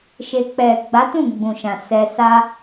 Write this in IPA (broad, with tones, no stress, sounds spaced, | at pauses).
ʃ e˨ k͡p ɛ˨ ɡ͡b a˨˦ t ũ˦˨ ɡ͡b ũ˨ ʃ ã˨ s ɛ˧ s a˦